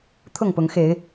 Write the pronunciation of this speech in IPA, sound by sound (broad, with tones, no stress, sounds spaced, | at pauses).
t̪ʰ ʊ˥˨ ŋ p ʊ˨˦ ŋ x e˨˦ ɪ̯